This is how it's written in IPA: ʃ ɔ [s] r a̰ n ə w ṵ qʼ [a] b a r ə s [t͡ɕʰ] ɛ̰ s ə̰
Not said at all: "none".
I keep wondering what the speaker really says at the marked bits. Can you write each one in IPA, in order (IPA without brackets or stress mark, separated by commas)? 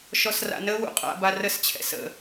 s, a̰, t͡ɕʰ